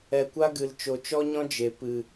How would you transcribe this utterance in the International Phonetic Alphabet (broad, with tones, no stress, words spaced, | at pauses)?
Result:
ɛ˨kʷa˦ɡɨ˨l t͡ʃo˨t͡ʃɔ˦ɲɔ̃˦ d͡ʒe˨ pɨ˨